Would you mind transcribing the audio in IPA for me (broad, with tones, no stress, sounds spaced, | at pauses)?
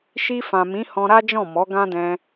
ʃ i˧ f ã˨ m ĩ˨˦ h ɔ̃˧ ɾ a˦ d͡ʒ ɔ̃˦˨ m ɔ˨˦ ɡ ã˦ d ɛ̃˧